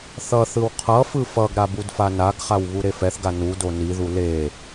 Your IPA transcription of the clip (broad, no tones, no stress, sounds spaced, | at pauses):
θ ʌ θ ɯ w qʰ ʌ f ɯ f ʌ ɡ ɾ a b u d f a n a ɡ χ a w β u ɾ e f ɛ θ ɡ a n u d o n i ð u l e